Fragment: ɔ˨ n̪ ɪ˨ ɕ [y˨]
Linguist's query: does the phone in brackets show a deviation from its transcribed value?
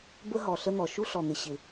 yes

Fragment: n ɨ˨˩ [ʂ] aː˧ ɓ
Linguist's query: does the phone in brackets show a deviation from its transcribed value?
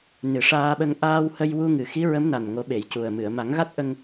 no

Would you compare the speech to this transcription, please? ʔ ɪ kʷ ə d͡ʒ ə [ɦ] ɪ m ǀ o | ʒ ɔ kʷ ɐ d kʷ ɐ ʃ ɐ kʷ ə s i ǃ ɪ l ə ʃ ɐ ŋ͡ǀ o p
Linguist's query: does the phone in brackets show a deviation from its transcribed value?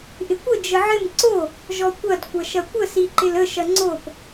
yes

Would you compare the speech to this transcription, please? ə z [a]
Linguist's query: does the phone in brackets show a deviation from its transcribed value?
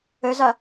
no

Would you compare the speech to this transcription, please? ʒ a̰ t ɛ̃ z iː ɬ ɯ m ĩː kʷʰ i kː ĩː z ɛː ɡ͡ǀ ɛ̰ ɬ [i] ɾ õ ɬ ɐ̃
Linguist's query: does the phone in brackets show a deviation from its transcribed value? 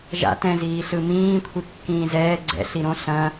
no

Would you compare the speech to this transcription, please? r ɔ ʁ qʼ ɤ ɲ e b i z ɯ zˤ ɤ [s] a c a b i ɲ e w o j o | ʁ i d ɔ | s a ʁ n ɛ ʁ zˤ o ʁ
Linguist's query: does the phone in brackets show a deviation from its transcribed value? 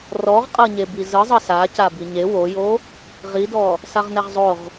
no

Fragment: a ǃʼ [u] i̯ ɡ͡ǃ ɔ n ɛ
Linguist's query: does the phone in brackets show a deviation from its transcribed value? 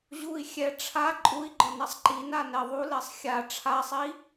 no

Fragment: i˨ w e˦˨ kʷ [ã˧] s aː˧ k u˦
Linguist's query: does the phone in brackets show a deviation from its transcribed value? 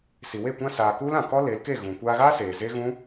yes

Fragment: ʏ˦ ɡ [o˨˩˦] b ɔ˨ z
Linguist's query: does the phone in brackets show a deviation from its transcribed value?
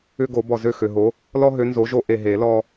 no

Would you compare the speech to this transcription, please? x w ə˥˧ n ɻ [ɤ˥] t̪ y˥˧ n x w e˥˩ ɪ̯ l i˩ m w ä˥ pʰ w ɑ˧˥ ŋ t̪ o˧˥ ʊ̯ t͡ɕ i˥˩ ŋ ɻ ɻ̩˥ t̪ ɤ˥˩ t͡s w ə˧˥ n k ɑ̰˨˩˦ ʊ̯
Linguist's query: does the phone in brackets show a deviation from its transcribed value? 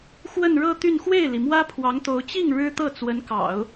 yes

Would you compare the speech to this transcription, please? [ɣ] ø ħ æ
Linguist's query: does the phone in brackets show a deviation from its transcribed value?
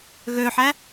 no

